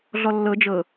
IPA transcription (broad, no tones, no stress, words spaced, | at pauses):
ɮɔlːɤ d͡ʒɤ